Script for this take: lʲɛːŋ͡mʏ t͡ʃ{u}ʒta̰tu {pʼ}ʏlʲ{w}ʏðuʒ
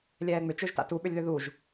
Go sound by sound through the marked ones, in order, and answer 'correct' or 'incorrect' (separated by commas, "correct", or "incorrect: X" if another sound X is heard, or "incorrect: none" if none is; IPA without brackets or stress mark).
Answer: incorrect: ø, incorrect: ɓ, incorrect: ð